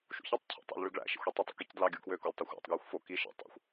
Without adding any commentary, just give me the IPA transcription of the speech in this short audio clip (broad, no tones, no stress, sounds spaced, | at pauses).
ʃ ṵ ç i tˤ cʰ o̰ tˤ o̰ l ɭ y ɡ ɭ æ̰ ʃ ḛ xʷ i tˤ y tˤ ṵ k i c d l ɑ ɡʲ u k w ø k o lʲ tˤ o xʷ æ̰ tˤ ɡ j ɯ xʷ f o k i ʃ ḛ tˤ o̰ xʷ